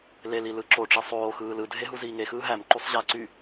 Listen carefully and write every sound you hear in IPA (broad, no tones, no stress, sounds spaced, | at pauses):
l e l i l ɯ ǁ o ʈ͡ʂ i sˤ oː x ɯː l ɯ dʱ e ɦ u z iː ŋ e x ɯː ɦ æ m ǃ u sˤ ʑ æ ǀ y